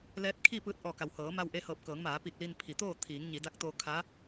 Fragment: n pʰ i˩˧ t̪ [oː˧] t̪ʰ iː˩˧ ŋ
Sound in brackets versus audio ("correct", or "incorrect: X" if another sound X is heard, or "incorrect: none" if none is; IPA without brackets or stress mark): incorrect: oː˥˨